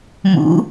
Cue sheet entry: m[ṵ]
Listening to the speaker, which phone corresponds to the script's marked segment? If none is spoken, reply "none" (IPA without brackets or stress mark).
ṵ